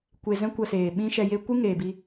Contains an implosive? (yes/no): yes